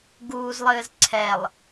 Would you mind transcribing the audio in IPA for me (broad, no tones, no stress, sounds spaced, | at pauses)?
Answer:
ɡ uː z lˠ ɘː z ǀʰ ɛ lˠ